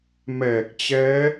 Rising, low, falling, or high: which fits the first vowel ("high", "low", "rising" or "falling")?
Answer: low